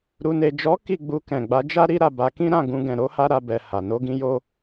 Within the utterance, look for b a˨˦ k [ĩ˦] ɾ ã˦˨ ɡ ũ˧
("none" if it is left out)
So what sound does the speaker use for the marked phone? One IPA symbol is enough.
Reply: ĩ˦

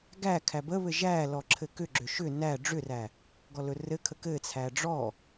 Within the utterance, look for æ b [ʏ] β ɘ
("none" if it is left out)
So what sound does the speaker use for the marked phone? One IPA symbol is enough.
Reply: ə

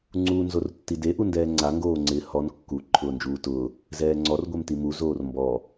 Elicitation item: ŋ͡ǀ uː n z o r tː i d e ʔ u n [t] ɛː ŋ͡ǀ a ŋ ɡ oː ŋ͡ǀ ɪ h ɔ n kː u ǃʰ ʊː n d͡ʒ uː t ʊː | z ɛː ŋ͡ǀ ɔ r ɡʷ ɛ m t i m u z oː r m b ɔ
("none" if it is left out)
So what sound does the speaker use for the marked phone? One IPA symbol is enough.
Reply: d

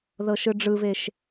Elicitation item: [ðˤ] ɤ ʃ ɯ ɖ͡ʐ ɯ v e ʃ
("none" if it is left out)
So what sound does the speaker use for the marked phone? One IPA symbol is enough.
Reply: ð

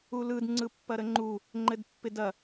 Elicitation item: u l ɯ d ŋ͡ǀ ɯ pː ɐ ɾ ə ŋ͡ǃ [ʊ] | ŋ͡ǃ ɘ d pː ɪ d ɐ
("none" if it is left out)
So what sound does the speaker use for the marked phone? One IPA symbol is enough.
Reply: u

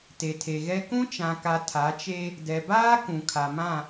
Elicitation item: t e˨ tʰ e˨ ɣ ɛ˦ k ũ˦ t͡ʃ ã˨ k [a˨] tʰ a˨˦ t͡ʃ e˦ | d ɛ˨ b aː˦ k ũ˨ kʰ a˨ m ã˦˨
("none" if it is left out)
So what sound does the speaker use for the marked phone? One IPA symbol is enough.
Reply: a˨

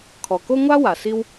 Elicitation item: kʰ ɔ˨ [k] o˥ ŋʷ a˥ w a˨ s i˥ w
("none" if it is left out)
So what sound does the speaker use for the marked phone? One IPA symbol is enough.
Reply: k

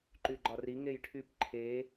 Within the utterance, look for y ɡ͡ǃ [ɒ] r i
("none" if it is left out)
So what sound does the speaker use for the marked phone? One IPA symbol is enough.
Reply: ɒ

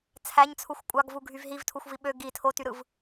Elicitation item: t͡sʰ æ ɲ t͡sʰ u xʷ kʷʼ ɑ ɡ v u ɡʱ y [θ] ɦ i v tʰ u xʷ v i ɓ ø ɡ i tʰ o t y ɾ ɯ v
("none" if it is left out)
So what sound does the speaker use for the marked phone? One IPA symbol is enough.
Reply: v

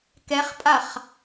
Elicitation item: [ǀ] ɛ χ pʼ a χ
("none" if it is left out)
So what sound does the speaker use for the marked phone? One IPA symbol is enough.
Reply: k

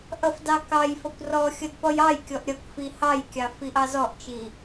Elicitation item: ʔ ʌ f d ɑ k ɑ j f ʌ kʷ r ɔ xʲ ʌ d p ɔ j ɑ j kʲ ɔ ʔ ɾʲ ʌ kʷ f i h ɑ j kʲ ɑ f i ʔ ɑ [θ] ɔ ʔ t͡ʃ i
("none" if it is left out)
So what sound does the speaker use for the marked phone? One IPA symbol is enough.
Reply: z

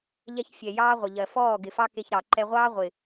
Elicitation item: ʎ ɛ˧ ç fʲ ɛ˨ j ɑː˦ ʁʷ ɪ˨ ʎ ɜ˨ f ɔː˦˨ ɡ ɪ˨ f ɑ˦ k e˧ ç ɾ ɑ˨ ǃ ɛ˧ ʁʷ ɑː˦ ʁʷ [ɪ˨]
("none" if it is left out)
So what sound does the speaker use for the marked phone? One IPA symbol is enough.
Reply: ɪ˨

